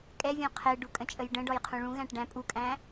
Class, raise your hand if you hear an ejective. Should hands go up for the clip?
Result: yes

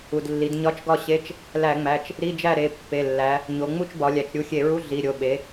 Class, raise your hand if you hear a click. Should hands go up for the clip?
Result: no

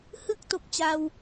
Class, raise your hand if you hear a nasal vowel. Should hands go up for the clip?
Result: no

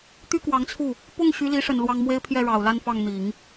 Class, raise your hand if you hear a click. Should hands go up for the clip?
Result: no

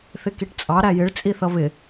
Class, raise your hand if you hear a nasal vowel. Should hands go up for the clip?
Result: no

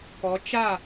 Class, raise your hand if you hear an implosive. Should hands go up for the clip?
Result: no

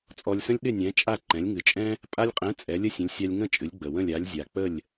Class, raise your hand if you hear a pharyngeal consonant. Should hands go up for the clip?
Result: no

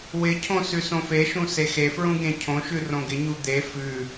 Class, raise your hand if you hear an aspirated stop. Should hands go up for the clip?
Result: yes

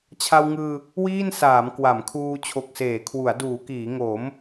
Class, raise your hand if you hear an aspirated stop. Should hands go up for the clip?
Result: yes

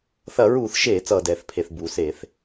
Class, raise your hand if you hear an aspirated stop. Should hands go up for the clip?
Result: yes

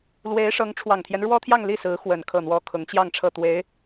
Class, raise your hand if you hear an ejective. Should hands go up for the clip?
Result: no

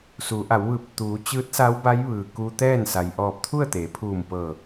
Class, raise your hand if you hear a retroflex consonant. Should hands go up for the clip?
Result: no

